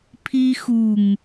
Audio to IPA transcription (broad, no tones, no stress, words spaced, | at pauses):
pʰixuŋ